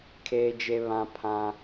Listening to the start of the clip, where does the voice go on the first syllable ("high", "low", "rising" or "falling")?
high